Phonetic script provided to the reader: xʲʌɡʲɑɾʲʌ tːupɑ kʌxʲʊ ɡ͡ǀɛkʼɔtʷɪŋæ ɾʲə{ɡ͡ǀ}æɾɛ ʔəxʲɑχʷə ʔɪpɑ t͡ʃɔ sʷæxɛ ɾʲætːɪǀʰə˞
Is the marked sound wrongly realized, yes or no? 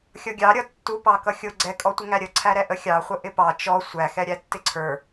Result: yes